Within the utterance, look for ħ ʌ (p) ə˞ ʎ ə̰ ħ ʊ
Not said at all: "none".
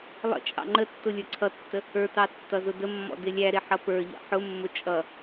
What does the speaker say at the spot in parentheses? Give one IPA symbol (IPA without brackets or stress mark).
p